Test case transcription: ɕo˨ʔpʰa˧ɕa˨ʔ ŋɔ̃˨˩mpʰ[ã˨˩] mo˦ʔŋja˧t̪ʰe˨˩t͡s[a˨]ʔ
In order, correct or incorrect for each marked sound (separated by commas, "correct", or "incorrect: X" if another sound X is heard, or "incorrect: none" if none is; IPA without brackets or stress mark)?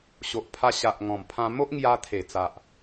incorrect: ã˧, correct